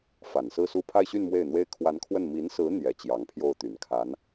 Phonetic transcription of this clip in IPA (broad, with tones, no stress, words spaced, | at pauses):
fa˨˩nsɹ̩˥˧su˥˧ pʰa˥˧ɪ̯ɕy˥˧n mwe˥˩ɪ̯n̪we˥ɪ̯ kʰwa˧˥nkʰwə˥˩n mi˧˥nsɹ̩˧˥ n̪jɛ˧˥t͡ɕjɑ˧˥ŋpʰjo˥˩ʊ̯t̪y˨˩n kʰa˧˥n